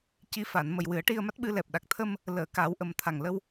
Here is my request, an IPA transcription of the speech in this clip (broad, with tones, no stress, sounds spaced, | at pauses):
c i˧˥ f a˨˩˨ n m ə˨˩ j w ɨ˨˩˦ ə̯ ʈ i˧ ə̯ m a˦˥ t̚ ɓ ɨ˧ l ɛ˨˩ p̚ ɗ a˨˩ k̚ t̪ʰ ə˧ m | l əː˨˩˨ k a˨˩˦ w ʔ ə˨˩ m t̪ʰ a˨˩ ŋ l ə˧ w